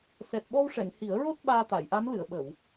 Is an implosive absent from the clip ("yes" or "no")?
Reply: no